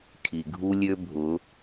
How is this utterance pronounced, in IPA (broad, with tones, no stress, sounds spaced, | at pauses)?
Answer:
kʰ i˩ ɡʱ u˧ lʲ ø˧ bʱ ʊ˩˧